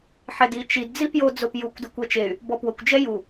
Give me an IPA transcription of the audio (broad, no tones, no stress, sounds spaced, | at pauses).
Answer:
ħ ɛ d i t͡ʃ i d d͡z i p j o d͡z o p j u kʷ d ʊ kʷ ɛ t͡ʃ e y̯ | b ɔ p w ʊ kʷ d͡ʒ ɛ j u